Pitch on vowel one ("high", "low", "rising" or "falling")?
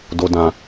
low